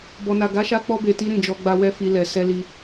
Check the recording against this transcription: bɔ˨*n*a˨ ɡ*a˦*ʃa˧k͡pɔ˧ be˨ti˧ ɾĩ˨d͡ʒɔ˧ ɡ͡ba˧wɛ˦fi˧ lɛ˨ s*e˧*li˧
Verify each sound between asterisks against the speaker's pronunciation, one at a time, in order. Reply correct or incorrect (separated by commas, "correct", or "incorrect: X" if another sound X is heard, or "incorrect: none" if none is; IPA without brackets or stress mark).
correct, incorrect: a˨˦, incorrect: ɛ˧